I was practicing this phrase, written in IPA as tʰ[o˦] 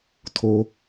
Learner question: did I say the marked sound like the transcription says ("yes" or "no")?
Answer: yes